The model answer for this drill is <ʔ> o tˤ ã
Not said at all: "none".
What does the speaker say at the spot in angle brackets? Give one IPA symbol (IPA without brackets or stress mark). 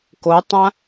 k